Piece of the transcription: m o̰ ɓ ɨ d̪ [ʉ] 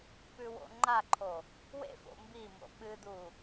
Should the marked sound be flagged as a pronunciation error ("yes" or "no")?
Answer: yes